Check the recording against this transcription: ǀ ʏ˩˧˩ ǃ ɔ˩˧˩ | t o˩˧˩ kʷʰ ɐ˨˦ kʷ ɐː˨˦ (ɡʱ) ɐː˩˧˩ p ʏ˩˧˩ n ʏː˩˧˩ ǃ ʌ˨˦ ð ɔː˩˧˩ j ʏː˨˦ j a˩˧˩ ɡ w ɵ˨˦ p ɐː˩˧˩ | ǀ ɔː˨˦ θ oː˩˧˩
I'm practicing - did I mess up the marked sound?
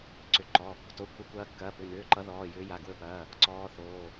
yes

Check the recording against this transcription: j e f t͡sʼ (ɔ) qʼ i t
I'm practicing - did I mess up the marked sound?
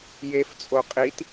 yes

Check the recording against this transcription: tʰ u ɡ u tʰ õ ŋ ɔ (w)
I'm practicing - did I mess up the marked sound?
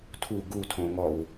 no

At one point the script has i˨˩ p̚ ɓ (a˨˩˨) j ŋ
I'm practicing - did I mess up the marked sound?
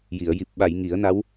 no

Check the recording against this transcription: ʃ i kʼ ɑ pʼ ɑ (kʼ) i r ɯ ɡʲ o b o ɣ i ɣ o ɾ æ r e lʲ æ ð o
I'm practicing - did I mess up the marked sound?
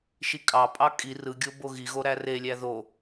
no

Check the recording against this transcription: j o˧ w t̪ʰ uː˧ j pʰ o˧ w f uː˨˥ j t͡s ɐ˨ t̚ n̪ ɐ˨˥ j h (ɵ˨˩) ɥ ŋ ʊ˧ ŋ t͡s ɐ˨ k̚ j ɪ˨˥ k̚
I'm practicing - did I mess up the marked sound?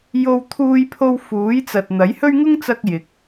yes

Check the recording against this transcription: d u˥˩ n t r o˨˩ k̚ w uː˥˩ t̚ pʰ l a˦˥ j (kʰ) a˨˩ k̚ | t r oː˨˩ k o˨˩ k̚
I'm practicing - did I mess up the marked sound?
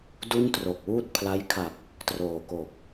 no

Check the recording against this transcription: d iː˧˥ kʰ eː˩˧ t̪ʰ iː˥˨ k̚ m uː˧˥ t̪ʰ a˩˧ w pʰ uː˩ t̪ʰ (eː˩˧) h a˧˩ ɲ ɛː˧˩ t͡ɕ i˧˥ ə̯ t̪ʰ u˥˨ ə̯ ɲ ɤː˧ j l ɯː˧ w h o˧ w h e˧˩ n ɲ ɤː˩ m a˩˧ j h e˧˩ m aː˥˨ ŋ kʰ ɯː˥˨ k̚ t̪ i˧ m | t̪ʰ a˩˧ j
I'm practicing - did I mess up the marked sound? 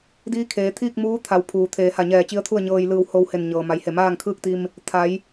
no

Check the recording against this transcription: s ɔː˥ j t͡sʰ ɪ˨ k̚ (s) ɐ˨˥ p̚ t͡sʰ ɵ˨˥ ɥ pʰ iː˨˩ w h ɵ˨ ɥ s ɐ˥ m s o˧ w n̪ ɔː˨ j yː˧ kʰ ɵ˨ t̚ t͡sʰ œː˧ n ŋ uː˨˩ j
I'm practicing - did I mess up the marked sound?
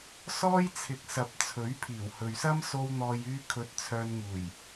no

